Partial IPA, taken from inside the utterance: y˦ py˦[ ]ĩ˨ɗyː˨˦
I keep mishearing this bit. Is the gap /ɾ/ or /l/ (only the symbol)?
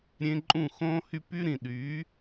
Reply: ɾ